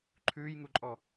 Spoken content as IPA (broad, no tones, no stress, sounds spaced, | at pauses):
ǃʰ ʉː j ŋ u ǃʼ ɔ